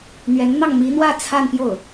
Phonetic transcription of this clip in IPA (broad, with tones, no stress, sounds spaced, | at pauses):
n̪ ɥ ɛ˧˥ n n̪ ɑ˥˩ ŋ m i˧˥ n̪ w ä˥˧ t͡sʰ a˥˧ n p j o˥˩ ʊ̯